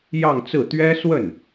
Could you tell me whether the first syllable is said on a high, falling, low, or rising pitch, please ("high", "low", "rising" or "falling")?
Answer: falling